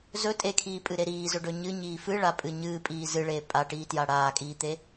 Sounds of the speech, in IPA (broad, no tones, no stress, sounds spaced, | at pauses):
z ɵ tʼ e kʰ iː pʼ ɨ ɾ e ɾ iː z ɵ ɖ ɵ ɲ ɨ ɲ iː f ɨ ɭ a pʼ ɨ ɲ ɨː pʼ iː z ɨ ɭ eː pʼ a ʈ iː t j a ɽ aː kʼ iː t̪ e